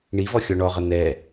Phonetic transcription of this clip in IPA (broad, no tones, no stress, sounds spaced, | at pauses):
ɳ i v ɔ xʲ ɔ ɳ ɔ ʁ ə n̪ ɛ